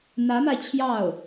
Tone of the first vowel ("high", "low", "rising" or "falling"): rising